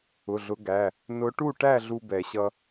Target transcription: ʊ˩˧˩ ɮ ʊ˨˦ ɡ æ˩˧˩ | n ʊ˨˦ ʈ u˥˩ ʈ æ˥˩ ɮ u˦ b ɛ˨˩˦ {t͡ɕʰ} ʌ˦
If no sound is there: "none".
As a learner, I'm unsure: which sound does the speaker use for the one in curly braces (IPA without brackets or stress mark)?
ɕ